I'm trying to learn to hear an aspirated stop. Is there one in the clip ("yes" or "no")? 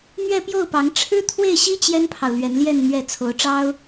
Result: yes